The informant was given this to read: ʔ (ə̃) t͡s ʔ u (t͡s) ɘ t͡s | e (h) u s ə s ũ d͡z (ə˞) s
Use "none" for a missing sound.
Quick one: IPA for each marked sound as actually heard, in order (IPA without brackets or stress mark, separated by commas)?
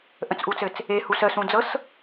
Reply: ə̃, t͡s, h, ɤ